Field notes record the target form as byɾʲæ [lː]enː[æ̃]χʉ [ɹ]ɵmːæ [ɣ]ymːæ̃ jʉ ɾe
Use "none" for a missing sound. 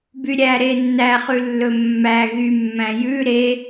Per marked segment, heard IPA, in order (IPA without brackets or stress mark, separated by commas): ɾ, æ, lː, ɣ